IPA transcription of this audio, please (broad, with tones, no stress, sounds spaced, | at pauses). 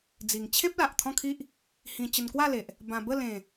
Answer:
d͡z i˨˩ ŋ t͡ɕʰ ẽ˦ p̚ l a˨ ʔ t̪ʰ ɔ̃˥˧ kʰ i˦ ʔ | h ĩ˧ t͡ɕ ə˧ n k w a˥˧ l e˨ ʔ | b ã˧ b ə˥˧ l ẽ˨˩